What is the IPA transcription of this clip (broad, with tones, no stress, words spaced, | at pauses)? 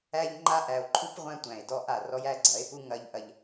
æ˦ʎŋ͡ǃa˦ ʔæ˨o̯ǃʰu˦p ʁʷæ̃˦tʷæ̃˨e̯ dɔ˦ ʔa˦˨ rɔ˦jæ˦ɡ͡ǀɐ˨˦e̯pu˦ ŋɐ˦ʎʔɐ˦ʎ